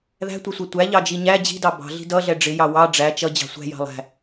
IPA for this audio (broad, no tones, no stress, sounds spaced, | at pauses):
ð æ̤ tʷ ʌ sʷ ʌ tʷ æ ʎ ɑ d͡ʒ i ɲ æ d͡ʑ i̤ d ɑ b ɑ̤ ɮ i̤ d ʌ ɮ ɛ ɖ͡ʐ ɪ j ɑ w ɑ ɖ͡ʐ æ t͡ʃ ʌ d͡ʑ ɑ̤ sʷ æ̤ j ɑ̤ lˠ æ̤